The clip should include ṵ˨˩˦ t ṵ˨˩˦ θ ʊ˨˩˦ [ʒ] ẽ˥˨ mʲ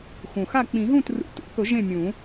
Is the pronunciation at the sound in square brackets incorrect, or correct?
correct